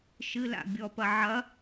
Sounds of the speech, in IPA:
ʃɨla̰ bʲɔpɐ ʕɐ

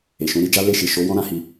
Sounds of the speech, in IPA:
e˨ʃũ˨˦ɾi˦d͡ʒa˦ le˦˨ʃi˨ʃo˨˦ wɔ̃˦ ɾã˧hi˧

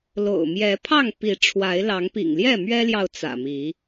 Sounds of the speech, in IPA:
lo̰˨˩ʊ̯ mjɛ˨˦pʰɑ˥˨ŋpi˨˦ ʈ͡ʂʰwa˨˦ɪ̯lɑ˨˦ŋpḭ˨˩ŋ ljɛ˥˨mɥɛ˦ljɑ˨ʊ̯ t͡sä̰˨˩mi˨˦

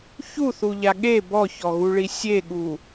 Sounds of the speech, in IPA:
çuθuʎa ɠe bɔçɔɣuɭi sʲeɠu

